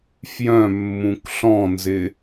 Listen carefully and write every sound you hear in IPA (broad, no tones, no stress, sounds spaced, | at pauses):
f j œ̃ mː ũ k ɬ ɔ̃ n z ɪ